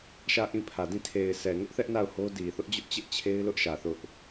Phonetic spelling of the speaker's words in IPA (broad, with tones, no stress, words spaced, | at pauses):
ʃä˦˨ʔĩ˦˨pʰä˨dĩ˦˨ tʰe˨ɪ̯sʰɛ˨ŋʊ˦ʔθɛ˦ʔ na˦˨ʊ̯ho˦ di˨θʊ˦ʔd͡ʑʊ˦ʔ t͡ɕɪ˦ʔt͡ɕʰe˦ɪ̯lʊ˦ʔʃä˨ θʊ˦ʔ